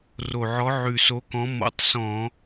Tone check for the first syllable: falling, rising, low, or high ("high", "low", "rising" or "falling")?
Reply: low